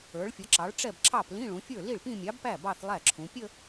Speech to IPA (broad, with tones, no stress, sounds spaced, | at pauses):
ə˞˩˧ ɭ fʲ ʌ˩˧ ǁ ɑ˩˧ ɭ ʈ͡ʂ ɛ˥˩ b ǁ ɑ˥˩ p l ĩ˧˥˧ ɭ ũ˩˧ fʲ ə˞˥˩ l i˥˩ ɭ p ĩ˥˧ mʲ ɑ˨˥ b p æ˥˩ b ɑ˥˧ θ lˠ æ˥˩ ǁʰ ũ˩˧ pʲ ə˥˧